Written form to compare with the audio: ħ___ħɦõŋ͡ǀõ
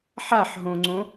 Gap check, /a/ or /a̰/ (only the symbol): a